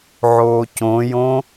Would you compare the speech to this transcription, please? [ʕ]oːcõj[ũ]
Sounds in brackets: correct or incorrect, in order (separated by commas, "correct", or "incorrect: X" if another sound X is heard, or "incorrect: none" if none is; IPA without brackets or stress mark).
correct, incorrect: õ